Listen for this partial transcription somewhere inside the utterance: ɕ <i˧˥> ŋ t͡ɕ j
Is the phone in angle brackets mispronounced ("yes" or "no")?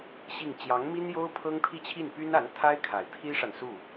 yes